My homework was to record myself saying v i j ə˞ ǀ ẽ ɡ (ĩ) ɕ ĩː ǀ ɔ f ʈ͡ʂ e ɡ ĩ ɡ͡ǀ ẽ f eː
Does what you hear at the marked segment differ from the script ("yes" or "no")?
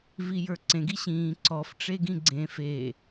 yes